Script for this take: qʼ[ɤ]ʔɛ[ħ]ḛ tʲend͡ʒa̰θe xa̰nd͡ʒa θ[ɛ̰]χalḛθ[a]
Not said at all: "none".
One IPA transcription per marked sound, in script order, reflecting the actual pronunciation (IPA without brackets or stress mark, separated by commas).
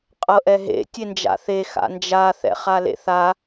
ɤ, ɦ, ɛ̰, a